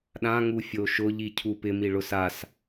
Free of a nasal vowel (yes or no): no